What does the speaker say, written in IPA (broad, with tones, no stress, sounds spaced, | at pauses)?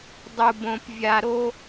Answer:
dˤ u˨ b õ˨ p vʲ a˨ ɾ o˦